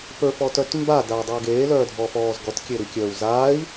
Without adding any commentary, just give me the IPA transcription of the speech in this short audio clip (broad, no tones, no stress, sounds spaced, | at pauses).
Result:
p ə˞ f ɔ t œ t m b a d a u̯ dˤ ə˞ ɡ eː l œː dʱ ɔ f ɔː z ɡ ɔ t kʲ e ɾ i kʲ œː u̯ z a i̯